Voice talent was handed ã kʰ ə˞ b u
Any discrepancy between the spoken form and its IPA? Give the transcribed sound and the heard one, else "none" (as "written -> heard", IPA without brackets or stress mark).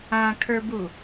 none